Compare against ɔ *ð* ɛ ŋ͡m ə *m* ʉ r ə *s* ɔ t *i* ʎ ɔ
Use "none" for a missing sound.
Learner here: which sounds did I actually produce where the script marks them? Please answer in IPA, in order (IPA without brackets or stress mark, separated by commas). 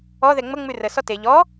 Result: ð, ŋ͡m, s, e